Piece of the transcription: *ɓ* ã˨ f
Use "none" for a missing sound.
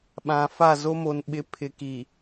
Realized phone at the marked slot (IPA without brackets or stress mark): ɓ